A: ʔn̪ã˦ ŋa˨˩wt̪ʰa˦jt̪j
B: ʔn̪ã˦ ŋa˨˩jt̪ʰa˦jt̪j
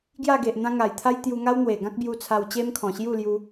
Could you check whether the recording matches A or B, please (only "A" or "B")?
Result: B